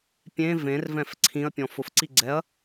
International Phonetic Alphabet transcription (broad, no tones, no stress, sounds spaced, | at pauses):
pʲ ẽ v ẽ r v ɛ̃ f ǀʰ ĩ ɐ̯ pʲ ɔ̃ f ʊ f ǀ i ɡ͡ǀ ɛ ɐ̯